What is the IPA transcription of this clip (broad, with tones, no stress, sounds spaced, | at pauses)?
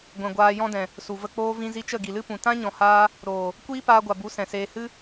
ɡʷ ɛ̃˨ ɡʷ aː˧ j ɔ̃˦ d ɛ̃˨ | s u˨ v ə˧ k͡p oː˧ v ĩ˧ z i˧ t͡ʃ ə˦˨ ɡ i˨ l ɨ˦ p ũ˨ t ã˦ ɲ ɔ̃˨ h aː˧ | ɾ oː˨ | kʷ iː˦ p aː˧ ɡʷ a˨ b u˨˦ s ɛ̃˨ s eː˧ h ɨ˦